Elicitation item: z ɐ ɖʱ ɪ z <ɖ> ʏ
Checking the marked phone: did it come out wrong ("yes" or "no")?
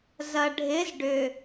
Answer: no